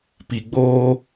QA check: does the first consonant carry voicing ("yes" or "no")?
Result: no